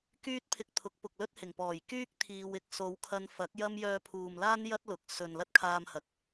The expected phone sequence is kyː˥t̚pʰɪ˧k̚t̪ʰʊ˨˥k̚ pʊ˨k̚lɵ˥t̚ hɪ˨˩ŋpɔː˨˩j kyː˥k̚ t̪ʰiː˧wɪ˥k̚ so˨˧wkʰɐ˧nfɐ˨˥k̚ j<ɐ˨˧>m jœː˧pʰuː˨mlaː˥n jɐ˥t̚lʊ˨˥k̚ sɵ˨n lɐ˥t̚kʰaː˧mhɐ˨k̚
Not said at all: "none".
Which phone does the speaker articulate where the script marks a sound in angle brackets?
ɐ˥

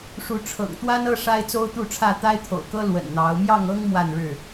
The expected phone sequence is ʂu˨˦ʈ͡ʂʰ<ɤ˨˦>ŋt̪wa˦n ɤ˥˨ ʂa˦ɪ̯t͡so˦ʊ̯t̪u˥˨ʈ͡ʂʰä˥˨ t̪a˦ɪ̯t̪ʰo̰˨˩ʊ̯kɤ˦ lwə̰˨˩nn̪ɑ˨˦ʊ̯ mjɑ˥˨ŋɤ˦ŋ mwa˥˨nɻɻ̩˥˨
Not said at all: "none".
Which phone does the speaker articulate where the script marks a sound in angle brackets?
ɤ̰˨˩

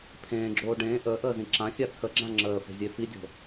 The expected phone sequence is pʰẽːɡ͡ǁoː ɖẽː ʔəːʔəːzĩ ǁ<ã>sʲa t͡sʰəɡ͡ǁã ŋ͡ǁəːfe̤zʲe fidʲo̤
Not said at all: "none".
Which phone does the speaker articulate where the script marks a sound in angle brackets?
ã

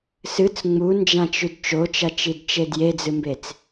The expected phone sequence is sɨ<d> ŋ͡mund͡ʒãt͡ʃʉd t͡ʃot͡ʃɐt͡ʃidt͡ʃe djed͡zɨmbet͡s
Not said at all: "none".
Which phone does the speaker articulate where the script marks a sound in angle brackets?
t͡s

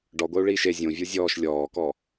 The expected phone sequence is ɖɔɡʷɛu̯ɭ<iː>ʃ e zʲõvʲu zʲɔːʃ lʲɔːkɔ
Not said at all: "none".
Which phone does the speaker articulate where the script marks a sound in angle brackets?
iː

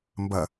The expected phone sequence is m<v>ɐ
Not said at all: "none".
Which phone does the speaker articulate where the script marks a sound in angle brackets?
b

